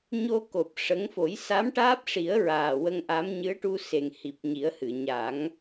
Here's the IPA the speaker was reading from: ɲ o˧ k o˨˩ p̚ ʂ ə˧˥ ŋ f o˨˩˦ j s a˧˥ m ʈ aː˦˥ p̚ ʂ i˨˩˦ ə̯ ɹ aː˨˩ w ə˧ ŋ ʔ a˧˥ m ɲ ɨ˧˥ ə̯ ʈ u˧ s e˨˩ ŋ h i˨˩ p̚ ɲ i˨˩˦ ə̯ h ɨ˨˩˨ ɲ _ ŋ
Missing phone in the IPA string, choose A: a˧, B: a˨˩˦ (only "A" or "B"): B